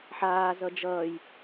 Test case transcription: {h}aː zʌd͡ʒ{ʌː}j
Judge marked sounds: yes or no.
no, yes

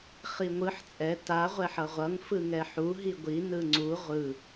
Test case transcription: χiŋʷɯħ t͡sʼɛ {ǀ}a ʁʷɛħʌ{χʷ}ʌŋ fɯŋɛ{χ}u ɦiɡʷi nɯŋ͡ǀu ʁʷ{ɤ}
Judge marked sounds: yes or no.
no, no, no, no

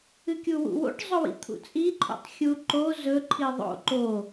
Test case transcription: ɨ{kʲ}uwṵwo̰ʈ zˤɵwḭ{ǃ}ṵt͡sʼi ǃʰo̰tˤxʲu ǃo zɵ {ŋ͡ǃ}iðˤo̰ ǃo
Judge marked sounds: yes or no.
yes, no, no

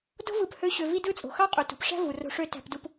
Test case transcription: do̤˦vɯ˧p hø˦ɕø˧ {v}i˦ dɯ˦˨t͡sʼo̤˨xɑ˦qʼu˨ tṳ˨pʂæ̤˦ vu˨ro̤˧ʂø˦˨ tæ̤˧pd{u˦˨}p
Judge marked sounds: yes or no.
yes, no

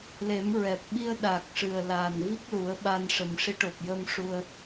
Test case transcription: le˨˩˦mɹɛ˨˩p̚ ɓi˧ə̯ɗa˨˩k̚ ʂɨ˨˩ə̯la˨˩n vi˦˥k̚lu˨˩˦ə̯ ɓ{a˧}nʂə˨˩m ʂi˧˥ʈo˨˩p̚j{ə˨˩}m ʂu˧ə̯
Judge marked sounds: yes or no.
yes, no

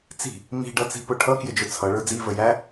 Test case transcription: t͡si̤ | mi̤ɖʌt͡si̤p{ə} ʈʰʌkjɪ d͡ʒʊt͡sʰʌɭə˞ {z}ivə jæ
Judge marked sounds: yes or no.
no, no

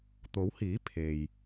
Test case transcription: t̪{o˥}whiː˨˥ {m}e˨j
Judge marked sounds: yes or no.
no, no

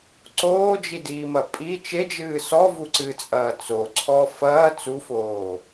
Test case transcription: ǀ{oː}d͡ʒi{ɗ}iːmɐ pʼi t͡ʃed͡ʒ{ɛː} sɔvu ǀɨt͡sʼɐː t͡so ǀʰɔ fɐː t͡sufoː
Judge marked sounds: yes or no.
yes, no, no

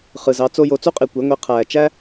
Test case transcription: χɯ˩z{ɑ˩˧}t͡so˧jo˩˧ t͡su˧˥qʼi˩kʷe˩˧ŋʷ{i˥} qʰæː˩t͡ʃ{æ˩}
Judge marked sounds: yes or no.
yes, no, no

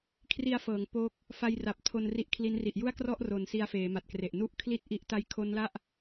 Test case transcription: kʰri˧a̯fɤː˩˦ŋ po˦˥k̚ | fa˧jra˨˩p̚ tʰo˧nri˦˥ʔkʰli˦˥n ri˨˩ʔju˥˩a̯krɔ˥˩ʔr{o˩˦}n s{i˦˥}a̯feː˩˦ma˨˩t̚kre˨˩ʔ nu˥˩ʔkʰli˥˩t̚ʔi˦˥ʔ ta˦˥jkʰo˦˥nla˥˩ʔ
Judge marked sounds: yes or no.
yes, yes

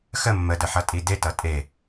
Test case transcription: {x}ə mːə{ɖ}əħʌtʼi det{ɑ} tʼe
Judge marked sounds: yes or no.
yes, no, no

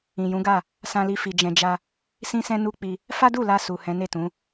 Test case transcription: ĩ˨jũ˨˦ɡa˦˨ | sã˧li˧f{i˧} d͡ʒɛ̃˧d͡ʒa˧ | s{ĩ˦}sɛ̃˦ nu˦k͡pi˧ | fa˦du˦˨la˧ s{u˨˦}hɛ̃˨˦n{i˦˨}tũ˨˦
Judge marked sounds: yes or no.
no, yes, no, no

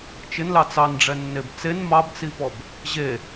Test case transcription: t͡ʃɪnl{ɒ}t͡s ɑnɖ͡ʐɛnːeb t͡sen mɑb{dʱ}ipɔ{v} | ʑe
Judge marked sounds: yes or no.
no, no, no

